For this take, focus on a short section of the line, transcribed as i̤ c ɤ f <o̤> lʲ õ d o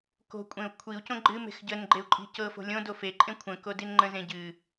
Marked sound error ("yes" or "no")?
no